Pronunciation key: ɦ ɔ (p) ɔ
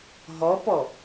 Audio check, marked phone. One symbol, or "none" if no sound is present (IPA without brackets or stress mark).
p